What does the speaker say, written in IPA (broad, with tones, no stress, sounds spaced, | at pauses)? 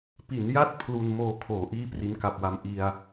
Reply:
p i˩˦ n j a˥˩ t̚ pʰ l u˧ n m oː˧ kʰ oː˩˦ ʔ iː˥˩ p r i˦˥ n k a˨˩ p̚ w a˦˥ m ʔ i˧ a̯